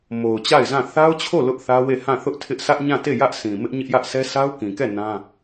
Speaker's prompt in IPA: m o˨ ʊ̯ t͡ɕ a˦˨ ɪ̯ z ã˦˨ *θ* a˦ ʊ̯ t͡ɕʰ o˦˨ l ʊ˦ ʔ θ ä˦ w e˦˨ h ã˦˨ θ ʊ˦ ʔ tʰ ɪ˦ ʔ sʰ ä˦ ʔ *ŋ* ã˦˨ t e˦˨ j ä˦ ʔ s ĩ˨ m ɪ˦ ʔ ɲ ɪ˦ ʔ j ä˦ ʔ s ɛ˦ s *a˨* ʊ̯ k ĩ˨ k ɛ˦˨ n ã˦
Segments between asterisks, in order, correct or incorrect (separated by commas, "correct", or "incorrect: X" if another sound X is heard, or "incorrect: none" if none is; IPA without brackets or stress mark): correct, incorrect: ɲ, incorrect: a˦